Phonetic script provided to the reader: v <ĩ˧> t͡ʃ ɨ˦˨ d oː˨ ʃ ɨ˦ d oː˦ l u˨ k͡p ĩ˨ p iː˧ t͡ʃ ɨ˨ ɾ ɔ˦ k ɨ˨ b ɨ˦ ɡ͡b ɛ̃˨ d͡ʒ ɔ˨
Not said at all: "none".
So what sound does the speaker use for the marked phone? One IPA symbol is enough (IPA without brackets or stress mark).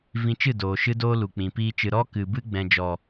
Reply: ĩ˧